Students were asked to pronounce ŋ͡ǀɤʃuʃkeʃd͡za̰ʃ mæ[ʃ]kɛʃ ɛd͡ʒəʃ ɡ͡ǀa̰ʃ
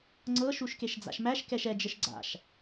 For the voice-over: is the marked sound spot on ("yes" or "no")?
yes